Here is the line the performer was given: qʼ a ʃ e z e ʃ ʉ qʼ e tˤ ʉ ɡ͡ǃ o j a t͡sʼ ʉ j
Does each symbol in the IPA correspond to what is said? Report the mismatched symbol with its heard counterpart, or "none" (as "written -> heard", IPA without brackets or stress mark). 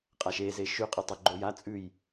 none